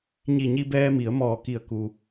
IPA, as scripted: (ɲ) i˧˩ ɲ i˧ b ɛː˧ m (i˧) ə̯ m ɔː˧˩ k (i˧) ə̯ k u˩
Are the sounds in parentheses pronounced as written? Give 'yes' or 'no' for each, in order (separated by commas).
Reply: yes, no, no